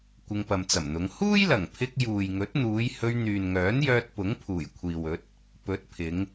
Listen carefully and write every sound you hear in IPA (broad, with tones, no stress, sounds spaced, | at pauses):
kʷ ɪ˧ ŋ p ɐ˨ m t͡s ɐ˨˩ m n̪ ʊ˨˧ ŋ h uː˥ j l ɐ˨˩ ŋ pʰ ɪ˧ k̚ j uː˨ j ŋ ɵ˨˥ t̚ n̪ uː˨˧ j h ɵ˧ ɥ n̪ yː˨ n ŋ œː˨˥ n j œː˧ t̚ p ʊ˨˥ ŋ pʰ uː˨˩ j kʷʰ iː˨ w ɵ˨˥ t̚ | p ɵ˨˥ t̚ pʰ ɪ˨˧ ŋ